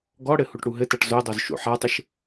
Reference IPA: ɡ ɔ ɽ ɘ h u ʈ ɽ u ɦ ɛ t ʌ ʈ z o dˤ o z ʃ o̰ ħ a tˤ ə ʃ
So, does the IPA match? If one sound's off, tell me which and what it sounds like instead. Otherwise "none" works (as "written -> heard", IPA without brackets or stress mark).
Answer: ɛ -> ɘ